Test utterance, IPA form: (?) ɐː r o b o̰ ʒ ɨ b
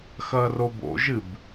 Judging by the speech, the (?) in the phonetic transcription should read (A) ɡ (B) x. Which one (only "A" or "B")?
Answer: B